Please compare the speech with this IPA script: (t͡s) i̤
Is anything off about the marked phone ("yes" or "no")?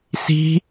yes